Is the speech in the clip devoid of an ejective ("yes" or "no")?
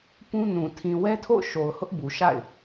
yes